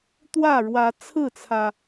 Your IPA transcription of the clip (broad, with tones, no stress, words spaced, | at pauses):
t̪wä˥˨ɻwä˨˦ t͡sʰɹ̩˥˨t͡sʰä˩